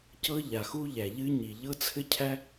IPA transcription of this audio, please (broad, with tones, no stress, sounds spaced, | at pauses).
c ɤ˥ ʎ a˩ x u˥ ʎ æ˩ ʎ ɨ˥ ɲ i˩ ʎ ɤ˥ t͡sʰ ɘ˥ cʰ æ˥